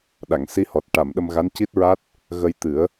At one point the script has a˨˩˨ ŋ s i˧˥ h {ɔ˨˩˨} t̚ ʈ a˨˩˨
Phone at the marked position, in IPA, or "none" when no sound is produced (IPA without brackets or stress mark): ɔ˨˩